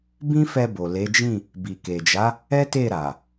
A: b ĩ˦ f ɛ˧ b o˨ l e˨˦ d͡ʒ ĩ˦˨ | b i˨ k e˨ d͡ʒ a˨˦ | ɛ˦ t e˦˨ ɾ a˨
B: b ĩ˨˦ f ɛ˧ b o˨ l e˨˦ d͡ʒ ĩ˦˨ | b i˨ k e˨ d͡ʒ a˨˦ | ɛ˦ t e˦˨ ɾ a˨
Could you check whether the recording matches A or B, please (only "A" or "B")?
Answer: A